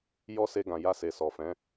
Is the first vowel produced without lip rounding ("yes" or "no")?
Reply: no